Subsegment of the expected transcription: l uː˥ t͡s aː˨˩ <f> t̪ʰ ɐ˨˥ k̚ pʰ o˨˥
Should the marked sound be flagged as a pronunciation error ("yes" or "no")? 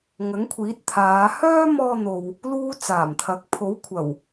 yes